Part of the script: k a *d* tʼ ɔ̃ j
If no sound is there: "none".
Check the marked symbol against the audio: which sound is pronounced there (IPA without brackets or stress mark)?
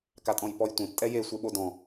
none